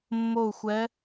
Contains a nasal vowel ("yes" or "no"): no